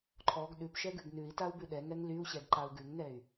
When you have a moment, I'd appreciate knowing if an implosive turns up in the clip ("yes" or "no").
yes